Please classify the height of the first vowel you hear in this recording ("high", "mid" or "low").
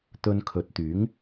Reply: mid